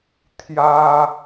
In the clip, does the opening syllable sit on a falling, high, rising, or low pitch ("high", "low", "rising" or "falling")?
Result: high